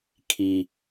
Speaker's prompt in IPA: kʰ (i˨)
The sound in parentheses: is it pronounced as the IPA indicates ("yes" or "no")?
yes